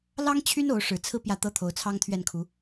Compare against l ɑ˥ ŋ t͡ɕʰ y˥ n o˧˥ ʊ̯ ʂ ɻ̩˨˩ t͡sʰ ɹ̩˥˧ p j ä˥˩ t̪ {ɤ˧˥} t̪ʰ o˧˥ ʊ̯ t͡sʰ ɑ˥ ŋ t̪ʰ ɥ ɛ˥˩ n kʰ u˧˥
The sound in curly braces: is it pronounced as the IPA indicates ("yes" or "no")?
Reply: no